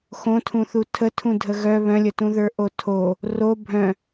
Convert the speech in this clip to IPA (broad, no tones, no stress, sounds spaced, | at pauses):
x õ tʰ ũ θ u tʰ ə tʰ ũ dʱ ə ɣ œ β œ̃ lʲ ə t ũ ð ə˞ ʔ o tʰ o | r o bʱ œ̃